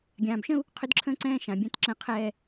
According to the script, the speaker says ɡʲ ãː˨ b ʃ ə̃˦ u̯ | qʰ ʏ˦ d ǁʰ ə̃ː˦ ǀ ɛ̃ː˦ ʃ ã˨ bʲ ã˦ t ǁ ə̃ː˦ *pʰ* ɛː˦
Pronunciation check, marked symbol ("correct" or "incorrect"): incorrect